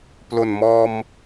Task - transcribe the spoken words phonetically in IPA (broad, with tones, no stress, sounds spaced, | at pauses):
p l o˨˩ n m ɔː˧ m